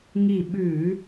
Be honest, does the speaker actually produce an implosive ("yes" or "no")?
yes